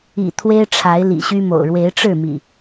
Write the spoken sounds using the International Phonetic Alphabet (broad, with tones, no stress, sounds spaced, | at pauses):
ḭ˨˩ t̪ʰ w e˦ ɪ̯ ʈ͡ʂʰ a˨˦ ɪ̯ l ḭ˨˩ ɕ y˦ m o̰˨˩ ʊ̯ ɻ w e˨˦ ɪ̯ ʈ͡ʂ ɻ̩˥˨ m ḭ˨˩